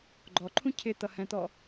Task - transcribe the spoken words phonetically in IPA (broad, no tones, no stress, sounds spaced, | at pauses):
ɡ͡ǃ ɔ ǃʰ ũ cʰ ɪ t̪ ʌ h ɛ̃ t̪ ɔ